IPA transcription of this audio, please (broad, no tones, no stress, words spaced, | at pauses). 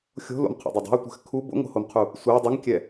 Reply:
xʲo̤lo̰mqʰo̰dˤʊ dˤɛ̤u̯tʷɛ̤x kʰu bo̰ŋo̤homqʰu | sʷa dˤuŋkʲɛ